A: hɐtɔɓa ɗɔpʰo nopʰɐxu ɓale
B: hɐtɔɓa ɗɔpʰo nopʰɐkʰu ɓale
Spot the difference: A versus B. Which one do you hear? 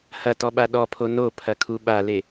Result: B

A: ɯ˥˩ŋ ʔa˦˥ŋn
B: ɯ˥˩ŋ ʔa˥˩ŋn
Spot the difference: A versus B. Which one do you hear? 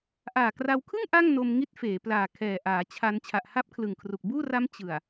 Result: B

